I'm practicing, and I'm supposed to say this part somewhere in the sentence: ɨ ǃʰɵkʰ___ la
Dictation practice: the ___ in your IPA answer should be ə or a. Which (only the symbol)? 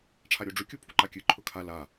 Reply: a